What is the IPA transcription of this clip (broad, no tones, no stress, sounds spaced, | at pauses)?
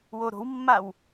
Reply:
w o ɾ o̤ w mː a w